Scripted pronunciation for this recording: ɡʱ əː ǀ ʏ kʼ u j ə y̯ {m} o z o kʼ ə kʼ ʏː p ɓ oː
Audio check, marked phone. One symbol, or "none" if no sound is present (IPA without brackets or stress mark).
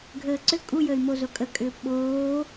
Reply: m